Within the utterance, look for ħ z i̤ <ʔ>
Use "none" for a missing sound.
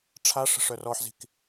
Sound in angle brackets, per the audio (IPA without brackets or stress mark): k